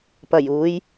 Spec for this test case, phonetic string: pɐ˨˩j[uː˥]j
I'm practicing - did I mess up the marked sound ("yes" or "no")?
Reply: yes